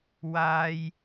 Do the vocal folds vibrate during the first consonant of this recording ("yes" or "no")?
yes